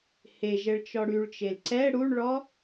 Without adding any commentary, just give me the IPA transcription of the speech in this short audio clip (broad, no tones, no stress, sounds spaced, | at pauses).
h e ʒ ɛ ɭ t͡ʃ ɔ ɽ y ɭ t͡ʃ e l ǀ ɛ ɽ u ɳ ɭ ɔ